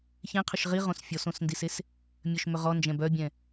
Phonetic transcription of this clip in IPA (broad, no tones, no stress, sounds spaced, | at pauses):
ç ẽ qʰ ʏ ʃ ʁ i ʁ õ s fʲ ɔ s õ s n d i s e s | mʲ œ ʃ m ʏ ʁ ɔ n d͡ʒ ɛ̃ b œ bʲ ɛ̃